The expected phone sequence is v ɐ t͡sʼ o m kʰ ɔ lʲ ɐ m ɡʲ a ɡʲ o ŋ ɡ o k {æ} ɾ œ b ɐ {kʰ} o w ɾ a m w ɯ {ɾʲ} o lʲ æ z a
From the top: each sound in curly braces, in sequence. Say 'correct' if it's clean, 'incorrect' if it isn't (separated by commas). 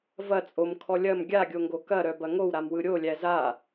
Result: incorrect, incorrect, correct